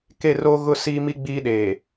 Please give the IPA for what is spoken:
ke˦˨roː˦ ɣʊ˦ siː˦mi˦ ɡ͡biː˦ ɗeː˨

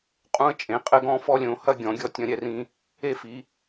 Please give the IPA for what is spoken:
qʼũ˦ə̯t͡ʃʼẽ˨˦qʼɘ˦ɡɔ̃˦ fɔ˦lʲõ˨˦hɐ˦ ɡʲɔ̃˨˦ɡʲɔ˦ tʲɐ̃˦ɾʲɛ˦rĩ˦ | e˦fi˨˦

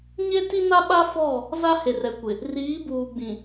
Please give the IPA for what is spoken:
ɲe˦ti˦na˦ɓa˦ fɔ˦˨ | za˦he˨rɛ˨kʷɪ˨ | riː˨˦buː˨ɡ͡bĩ˨

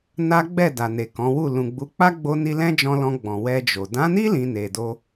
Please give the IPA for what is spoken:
na˦ɡ͡bɛ˦˨ da˨ne˨ kɔ̃˨˦wu˦˨ lũ˨ɡ͡bu˨˦k͡pa˦ ɡ͡bo˦ni˦ lɛ̃˦d͡ʒɔ̃˧lɔ̃˧ ɡ͡bɔ̃˨wɛ˧ d͡ʒo˨ dã˨˦ni˦ lĩ˧ne˨do˧

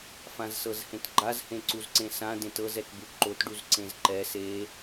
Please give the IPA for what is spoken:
fãzsɤzhẽtɡ͡ǃaz hẽǀuzǀẽsã dẽtɤz ɛtbuǃot ɖuzǀẽzǃɛ se

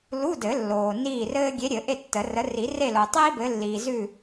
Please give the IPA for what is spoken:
lu˧˥˧dɘ˨˩˦ lːoː˨niː˥˨rɘː˥ ɡʲe˨˥ɾʲɘ˨˩˦ ʔe˥˨ tːə˨˩˦rə˨˥ ri˨˩˦re˥˨lo˨tˤiː˥ bɘ˨˥lːiː˨zʉ˥˨

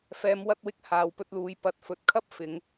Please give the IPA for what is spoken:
fɛː˨˧mwɐ˧t̚wɪ˧k̚ haː˨wpɵ˧t̚luː˨˧j pɐ˨t̚fɵ˨t̚kʰɐ˥p̚ fɪ˨˧ŋ

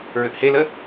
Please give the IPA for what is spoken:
ɹʏʔhelə

